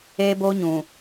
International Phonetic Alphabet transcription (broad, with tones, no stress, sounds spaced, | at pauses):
e˦ b o˦ ɲ ũ˨